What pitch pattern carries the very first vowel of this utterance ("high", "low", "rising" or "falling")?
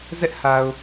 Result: high